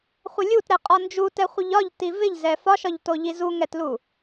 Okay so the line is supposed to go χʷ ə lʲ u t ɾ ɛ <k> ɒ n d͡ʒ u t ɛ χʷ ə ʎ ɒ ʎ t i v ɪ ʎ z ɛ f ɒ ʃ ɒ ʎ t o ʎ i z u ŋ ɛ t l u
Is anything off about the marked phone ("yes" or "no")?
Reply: yes